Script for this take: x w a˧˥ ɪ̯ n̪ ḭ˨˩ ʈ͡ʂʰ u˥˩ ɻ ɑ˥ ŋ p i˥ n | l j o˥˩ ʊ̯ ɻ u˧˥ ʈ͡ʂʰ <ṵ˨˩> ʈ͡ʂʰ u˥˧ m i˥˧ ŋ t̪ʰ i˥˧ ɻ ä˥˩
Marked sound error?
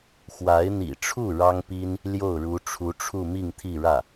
yes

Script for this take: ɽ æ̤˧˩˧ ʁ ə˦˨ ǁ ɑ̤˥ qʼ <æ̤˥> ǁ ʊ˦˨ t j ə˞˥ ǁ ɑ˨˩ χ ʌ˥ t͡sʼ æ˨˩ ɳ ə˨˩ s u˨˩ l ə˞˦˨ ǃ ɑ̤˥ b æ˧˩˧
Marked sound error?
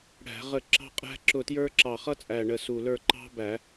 no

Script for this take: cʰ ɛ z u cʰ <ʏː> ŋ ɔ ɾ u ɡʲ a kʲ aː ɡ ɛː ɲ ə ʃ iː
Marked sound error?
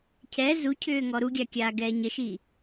no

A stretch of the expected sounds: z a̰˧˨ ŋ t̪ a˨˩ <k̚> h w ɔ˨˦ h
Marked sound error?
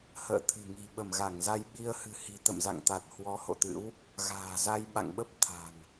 yes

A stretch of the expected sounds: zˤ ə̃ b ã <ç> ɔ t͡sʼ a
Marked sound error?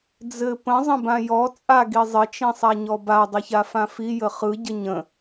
yes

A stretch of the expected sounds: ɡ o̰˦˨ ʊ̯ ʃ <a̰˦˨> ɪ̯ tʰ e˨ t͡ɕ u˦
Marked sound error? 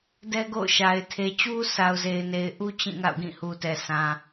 yes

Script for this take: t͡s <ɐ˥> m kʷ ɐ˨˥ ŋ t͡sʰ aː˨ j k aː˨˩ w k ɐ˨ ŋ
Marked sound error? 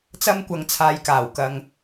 no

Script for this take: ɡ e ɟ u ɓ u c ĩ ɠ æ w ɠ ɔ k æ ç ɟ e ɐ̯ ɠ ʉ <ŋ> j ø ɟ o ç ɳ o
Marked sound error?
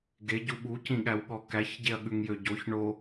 no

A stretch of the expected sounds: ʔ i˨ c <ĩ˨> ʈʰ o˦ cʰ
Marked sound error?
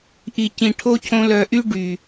no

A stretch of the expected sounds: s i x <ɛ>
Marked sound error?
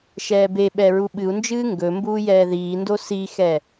no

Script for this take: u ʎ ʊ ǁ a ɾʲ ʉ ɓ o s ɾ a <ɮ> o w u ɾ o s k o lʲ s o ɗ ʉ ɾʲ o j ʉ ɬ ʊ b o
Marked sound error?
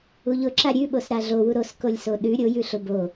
no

